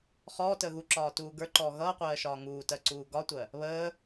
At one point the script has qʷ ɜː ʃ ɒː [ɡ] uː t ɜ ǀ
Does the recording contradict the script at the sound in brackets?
yes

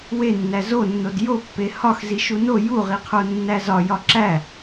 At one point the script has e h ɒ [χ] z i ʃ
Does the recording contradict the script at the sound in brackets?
yes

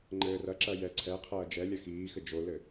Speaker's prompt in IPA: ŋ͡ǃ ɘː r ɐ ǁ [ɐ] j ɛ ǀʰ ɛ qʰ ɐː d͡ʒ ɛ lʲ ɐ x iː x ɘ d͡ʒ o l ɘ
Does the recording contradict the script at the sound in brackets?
no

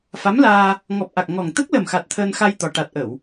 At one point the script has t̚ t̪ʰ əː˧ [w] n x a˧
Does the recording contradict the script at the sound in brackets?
yes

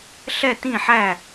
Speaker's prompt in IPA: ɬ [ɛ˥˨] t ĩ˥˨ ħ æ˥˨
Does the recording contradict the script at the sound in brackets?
no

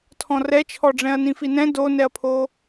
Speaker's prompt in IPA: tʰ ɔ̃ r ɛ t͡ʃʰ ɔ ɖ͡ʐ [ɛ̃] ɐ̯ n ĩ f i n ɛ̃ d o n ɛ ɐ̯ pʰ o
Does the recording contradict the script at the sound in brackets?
no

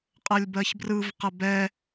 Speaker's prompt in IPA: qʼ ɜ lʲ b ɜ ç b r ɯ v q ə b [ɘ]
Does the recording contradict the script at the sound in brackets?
yes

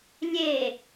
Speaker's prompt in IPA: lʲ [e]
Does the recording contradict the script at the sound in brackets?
no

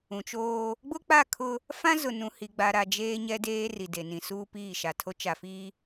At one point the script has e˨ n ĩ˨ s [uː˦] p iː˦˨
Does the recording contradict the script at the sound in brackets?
no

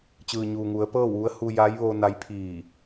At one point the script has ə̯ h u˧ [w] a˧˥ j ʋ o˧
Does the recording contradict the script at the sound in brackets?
yes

